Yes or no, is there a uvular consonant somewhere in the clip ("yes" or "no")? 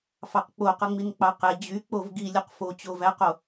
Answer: yes